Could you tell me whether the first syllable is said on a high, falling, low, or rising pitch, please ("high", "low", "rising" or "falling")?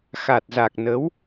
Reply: low